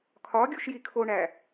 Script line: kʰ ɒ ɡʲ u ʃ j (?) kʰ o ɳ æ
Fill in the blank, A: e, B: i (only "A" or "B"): B